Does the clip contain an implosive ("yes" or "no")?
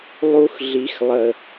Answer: no